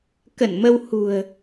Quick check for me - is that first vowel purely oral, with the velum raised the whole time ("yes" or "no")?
yes